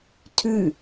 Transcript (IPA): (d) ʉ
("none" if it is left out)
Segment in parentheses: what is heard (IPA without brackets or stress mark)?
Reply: tʰ